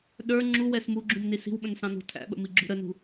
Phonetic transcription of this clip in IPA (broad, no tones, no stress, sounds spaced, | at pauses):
ɗ ə˞ ŋ͡ǁ u w ɛ s m u ɡ͡ǁ ũ m n i s i̤ w ɓ ə̃ n s ɑ̃ n ṳ tʰ æ̰ ɓ ə̰ m i ɡ͡ǁ ṳ ɾ ə n ṳ